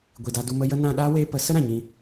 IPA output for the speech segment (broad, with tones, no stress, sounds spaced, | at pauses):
ɡʷ i˨ d a˧ d u˧ m ə˦ j ə˦ n ã˧ ɗ aː˦ w eː˧ p ə˨˦ s ə˦ ɾ ã˨ ɲ ĩ˧